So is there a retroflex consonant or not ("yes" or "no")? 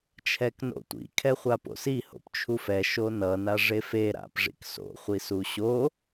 yes